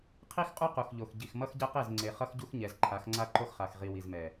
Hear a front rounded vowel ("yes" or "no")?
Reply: no